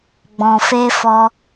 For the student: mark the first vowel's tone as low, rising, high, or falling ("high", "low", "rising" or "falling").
low